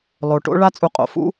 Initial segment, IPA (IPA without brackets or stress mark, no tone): lˠ